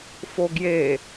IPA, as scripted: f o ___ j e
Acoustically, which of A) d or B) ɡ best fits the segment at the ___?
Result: B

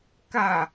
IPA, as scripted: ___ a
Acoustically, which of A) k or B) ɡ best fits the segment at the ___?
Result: A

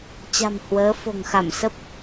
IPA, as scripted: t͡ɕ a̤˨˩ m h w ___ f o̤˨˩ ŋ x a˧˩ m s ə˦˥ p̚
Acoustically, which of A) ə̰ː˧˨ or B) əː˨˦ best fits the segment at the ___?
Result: B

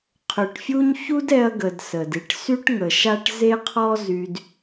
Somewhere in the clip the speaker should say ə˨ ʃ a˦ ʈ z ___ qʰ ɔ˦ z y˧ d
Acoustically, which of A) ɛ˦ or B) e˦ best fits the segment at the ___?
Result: B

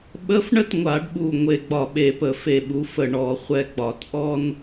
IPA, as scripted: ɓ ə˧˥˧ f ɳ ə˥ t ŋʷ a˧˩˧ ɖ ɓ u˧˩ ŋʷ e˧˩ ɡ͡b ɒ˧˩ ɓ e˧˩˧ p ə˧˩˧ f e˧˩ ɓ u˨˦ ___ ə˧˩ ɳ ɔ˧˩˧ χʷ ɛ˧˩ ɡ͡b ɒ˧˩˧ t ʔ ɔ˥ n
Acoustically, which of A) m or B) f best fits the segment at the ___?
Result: B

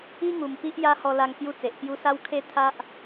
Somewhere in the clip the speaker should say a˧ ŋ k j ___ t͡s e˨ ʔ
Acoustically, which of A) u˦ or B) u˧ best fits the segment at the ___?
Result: A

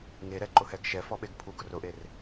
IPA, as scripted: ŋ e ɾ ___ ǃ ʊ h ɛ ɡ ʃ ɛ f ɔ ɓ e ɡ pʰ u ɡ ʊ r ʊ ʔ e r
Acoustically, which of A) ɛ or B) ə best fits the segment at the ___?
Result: A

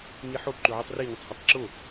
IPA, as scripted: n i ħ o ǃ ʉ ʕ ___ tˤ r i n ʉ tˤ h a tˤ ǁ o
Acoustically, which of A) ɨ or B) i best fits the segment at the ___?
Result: B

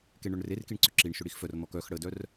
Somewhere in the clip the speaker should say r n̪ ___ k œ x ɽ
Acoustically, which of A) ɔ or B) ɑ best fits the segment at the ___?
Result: A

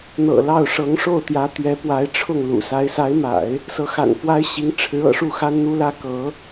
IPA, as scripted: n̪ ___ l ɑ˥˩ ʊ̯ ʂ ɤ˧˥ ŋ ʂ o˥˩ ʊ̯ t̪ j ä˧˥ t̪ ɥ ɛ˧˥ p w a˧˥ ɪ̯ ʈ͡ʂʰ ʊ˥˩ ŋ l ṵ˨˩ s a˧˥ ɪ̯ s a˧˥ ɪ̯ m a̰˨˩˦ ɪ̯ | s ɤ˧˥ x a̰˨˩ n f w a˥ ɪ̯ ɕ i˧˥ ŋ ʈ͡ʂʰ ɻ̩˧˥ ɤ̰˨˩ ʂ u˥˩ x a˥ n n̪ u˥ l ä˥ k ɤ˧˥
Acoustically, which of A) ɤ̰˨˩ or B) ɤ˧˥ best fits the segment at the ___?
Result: A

